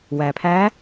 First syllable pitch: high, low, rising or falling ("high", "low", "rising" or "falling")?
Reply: low